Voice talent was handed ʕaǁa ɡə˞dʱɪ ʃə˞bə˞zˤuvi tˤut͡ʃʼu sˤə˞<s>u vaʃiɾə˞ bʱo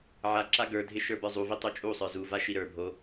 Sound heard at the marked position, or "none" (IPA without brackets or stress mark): z